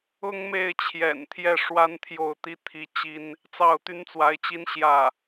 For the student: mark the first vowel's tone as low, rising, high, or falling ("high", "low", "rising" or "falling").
high